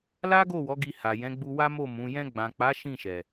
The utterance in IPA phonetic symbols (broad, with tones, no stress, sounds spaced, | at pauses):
l a˦ ɡ o˦˨ w ɔ˨˦ ɡ i˧ h a˨ j ɛ̃˨˦ ɡ͡b u˧ w a˦ m o˦˨ m ũ˨˦ j ɛ̃˧ ɡ͡b ã˨ k͡p a˨˦ ʃ ĩ˦˨ ʃ ɛ˨